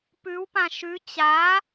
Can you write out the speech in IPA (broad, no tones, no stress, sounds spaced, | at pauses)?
p ʉ w p ã ʃ ʉ t͡ɕ a